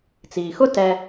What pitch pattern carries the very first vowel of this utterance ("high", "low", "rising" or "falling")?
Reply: low